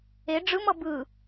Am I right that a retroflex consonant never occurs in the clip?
no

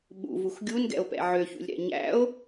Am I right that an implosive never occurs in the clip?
no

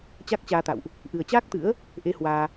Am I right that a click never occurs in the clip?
yes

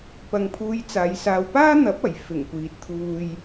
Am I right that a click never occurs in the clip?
yes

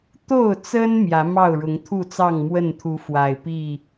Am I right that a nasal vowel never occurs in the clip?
yes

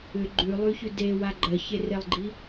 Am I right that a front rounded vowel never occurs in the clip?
no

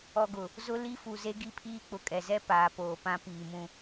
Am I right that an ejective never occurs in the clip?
no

